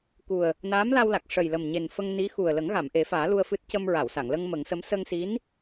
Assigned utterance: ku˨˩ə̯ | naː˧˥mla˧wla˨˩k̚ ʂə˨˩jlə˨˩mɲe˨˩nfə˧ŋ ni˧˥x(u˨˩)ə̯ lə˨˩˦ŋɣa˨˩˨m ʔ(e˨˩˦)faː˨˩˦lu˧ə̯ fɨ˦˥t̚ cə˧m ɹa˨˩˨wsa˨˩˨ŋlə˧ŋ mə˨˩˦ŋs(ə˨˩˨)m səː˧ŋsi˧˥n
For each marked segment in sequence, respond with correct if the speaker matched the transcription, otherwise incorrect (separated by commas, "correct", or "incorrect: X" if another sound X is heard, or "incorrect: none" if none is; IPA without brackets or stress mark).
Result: correct, correct, incorrect: ə˧˥